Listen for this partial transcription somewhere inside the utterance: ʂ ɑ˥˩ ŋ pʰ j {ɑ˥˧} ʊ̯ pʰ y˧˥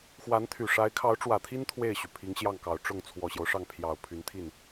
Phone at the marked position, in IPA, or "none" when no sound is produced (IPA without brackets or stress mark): ɑ˨˩